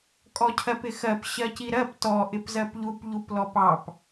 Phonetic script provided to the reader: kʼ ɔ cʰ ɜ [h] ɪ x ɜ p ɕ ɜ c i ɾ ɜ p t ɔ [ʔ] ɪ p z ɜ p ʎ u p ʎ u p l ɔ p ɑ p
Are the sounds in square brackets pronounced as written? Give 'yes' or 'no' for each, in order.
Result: no, yes

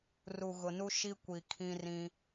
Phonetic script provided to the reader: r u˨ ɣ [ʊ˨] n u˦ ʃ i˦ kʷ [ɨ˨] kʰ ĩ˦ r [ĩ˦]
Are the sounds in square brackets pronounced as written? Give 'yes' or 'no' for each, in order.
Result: yes, no, yes

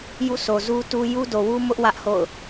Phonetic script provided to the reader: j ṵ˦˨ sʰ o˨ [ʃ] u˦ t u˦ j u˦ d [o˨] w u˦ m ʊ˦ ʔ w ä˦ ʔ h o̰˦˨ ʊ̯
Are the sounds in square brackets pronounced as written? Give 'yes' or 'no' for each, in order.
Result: no, yes

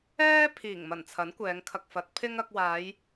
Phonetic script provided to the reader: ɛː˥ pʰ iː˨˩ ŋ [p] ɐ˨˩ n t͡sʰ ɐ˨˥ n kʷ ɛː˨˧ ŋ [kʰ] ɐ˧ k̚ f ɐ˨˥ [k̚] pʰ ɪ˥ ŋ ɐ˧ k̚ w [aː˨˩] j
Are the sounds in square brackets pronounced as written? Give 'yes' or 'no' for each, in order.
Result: no, yes, no, no

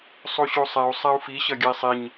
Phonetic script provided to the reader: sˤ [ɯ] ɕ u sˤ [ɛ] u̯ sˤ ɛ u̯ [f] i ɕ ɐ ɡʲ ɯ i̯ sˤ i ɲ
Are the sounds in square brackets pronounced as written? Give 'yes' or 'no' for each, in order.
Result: no, yes, yes

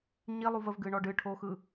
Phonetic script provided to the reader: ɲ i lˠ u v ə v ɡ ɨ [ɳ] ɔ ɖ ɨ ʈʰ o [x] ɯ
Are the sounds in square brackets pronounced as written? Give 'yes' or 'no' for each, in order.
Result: yes, yes

